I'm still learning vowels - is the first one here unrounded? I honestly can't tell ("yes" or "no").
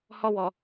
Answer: no